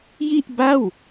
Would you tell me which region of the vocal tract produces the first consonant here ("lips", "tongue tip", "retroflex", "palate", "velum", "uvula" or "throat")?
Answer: palate